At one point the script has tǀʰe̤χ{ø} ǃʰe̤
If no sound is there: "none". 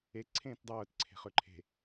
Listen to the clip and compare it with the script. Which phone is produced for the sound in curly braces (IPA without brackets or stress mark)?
ø